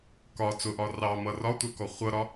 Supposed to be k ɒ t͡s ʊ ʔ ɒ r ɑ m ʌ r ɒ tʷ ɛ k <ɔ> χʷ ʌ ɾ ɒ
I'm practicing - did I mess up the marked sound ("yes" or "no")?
no